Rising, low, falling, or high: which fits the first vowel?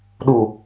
low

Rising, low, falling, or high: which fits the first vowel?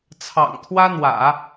low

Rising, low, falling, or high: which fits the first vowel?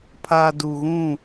low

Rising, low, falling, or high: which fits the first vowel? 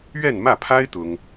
falling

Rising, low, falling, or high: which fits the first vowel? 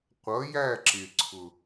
rising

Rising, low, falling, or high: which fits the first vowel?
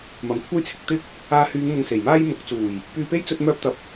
low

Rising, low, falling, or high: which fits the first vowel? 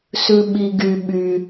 low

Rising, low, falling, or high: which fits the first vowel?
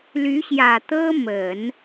rising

